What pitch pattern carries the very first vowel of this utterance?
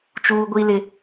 high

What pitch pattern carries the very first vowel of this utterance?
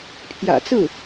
low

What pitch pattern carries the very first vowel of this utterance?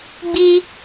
high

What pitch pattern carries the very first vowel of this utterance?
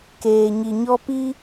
low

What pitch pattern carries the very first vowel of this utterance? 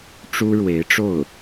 high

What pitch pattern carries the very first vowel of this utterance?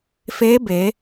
rising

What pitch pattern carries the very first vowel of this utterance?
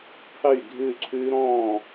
falling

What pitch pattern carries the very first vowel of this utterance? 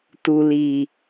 low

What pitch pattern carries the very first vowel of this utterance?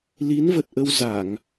rising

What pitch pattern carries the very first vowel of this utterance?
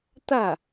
falling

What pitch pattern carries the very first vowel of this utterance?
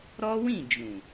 high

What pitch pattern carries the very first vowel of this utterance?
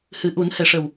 low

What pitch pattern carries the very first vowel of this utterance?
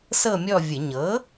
falling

